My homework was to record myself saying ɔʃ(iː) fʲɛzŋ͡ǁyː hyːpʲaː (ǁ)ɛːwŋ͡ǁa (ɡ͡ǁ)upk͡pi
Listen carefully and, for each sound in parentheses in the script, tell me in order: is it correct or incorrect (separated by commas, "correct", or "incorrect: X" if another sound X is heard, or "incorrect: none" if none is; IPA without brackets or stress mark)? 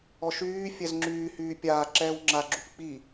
incorrect: yː, correct, correct